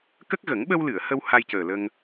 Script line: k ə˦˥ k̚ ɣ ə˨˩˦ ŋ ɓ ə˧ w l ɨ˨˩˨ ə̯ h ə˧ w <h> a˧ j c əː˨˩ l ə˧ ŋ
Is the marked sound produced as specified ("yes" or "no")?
yes